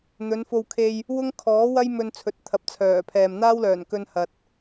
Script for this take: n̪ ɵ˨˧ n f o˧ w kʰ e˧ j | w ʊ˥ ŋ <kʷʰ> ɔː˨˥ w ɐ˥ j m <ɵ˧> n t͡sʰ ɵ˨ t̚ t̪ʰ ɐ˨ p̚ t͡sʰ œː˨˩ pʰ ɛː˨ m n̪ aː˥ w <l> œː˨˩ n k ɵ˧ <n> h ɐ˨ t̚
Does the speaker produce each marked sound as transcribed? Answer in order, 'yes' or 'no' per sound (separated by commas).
no, yes, yes, yes